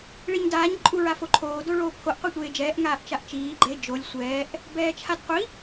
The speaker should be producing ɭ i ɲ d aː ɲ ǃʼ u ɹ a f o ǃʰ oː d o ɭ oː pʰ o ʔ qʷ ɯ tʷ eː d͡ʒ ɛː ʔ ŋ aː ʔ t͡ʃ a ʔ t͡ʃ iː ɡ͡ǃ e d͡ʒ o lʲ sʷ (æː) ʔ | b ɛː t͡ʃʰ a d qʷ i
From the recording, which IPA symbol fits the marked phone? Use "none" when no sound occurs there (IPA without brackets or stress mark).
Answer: ɛː